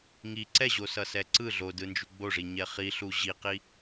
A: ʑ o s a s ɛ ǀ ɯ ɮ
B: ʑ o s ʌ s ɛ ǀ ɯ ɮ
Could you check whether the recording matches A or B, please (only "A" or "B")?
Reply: B